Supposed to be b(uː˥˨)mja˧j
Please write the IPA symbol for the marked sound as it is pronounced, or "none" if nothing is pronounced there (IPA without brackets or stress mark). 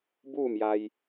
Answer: uː˥˨